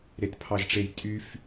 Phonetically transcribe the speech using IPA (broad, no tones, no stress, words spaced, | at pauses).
ɾetpʰɑʒʈ͡ʂejtʼyf